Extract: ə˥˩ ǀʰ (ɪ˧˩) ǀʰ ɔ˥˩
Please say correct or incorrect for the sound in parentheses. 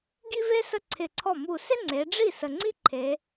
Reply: correct